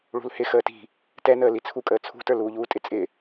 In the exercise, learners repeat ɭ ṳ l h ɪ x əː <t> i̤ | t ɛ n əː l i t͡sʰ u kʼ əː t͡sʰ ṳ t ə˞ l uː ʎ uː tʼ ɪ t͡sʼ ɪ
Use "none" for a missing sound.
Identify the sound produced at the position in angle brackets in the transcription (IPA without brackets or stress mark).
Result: t